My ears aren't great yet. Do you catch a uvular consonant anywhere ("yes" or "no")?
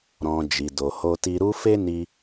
no